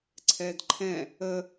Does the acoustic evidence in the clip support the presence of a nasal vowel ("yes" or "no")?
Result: yes